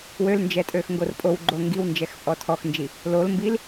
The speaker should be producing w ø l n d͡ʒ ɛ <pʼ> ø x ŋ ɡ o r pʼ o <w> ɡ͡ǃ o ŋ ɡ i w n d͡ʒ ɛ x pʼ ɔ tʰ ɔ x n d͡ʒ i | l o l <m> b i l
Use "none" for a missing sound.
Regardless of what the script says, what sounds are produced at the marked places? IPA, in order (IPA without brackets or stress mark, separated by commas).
tʼ, w, m